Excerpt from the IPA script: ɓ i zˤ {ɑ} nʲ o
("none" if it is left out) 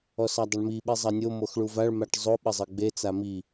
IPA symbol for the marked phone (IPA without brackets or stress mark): ɑ